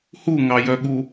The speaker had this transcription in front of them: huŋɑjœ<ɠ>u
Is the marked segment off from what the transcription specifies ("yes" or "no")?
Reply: no